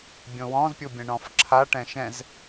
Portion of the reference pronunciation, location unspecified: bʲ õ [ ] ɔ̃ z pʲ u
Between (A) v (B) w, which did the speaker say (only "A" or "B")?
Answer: B